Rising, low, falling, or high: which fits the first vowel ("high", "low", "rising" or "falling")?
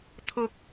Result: low